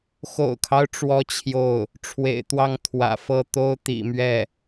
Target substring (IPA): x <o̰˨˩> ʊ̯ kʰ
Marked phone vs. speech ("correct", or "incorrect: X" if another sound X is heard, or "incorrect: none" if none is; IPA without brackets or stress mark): correct